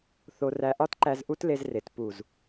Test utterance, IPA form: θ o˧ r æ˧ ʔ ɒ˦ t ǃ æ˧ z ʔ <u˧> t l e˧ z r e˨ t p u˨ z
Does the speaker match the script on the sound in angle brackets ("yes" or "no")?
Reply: no